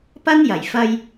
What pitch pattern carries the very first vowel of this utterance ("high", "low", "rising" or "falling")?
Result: high